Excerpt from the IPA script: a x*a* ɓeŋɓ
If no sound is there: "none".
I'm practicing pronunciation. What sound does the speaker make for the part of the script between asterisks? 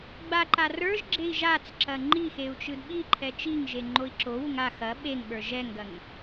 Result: ɐ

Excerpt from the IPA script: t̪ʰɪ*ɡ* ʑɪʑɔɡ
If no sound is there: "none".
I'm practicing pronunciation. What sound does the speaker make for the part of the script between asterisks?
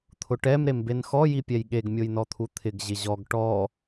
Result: ɡ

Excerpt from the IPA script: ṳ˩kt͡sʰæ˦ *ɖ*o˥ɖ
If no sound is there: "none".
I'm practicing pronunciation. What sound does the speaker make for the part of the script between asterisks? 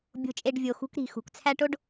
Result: ʈ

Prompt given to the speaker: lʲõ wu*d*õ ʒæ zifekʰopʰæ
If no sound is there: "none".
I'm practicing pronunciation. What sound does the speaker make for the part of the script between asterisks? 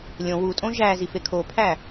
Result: tʼ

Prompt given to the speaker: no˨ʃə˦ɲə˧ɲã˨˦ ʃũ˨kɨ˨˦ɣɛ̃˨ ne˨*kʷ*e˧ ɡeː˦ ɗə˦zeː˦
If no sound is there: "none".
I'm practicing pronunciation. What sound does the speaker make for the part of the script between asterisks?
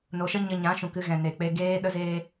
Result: k͡p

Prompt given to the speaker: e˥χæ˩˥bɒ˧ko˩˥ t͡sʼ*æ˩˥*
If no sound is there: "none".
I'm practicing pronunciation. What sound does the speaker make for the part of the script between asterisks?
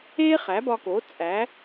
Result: æ˩˥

